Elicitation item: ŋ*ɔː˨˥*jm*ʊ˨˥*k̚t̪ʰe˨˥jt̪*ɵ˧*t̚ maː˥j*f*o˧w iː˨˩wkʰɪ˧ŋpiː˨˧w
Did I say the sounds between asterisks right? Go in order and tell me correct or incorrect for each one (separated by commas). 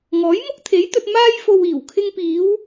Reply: correct, incorrect, correct, correct